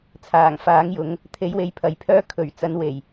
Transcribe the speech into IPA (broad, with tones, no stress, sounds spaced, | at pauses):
t͡sʰ aː˨˩ ŋ f aː˨˥ ŋ j ʊ˨˥ ŋ | t̪ʰ e˨˥ j w e˨˧ j pʰ ɐ˨˧ j pʰ œː˥ kʰ ɵ˨˩ ɥ t͡s ɐ˨˥ n w e˨˩ j